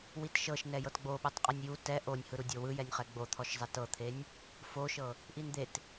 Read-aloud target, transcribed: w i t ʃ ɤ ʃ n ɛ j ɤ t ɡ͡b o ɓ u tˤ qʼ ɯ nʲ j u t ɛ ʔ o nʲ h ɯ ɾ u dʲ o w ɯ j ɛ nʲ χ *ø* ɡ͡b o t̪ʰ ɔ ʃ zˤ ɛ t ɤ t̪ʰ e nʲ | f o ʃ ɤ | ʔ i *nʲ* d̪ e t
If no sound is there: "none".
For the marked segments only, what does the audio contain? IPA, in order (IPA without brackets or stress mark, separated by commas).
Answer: ɛ, n